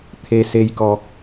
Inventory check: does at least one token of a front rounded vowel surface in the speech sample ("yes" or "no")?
no